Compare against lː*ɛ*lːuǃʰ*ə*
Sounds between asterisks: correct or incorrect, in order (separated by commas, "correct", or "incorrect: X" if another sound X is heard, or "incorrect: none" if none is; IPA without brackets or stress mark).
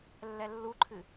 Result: correct, incorrect: ɨ